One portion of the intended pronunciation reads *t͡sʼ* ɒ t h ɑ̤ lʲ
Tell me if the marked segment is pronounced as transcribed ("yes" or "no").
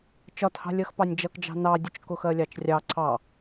no